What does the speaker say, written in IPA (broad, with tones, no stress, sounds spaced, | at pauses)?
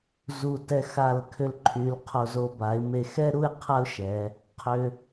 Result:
z u˧˩ t ɛ˧ x a˧˩ l kʰ ʏ˧ l ǃʰ y˩˧ l qʰ o˧˩ z o˧ b a˩˧ ɪ̯ m e˧˩ x ɛ˥ ɾ u˥˧ ɪ̯ qʰ a˥ ʊ̯ ʃ ɛ˩˧ | qʰ ʏ˧